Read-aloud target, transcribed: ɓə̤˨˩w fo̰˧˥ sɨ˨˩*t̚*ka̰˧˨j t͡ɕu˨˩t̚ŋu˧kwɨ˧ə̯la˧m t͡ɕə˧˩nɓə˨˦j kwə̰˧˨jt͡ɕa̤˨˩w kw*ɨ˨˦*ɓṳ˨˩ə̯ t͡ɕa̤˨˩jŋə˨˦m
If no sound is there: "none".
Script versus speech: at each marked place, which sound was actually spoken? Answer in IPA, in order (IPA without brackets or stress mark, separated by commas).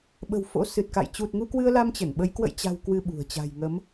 t̚, ɨ˧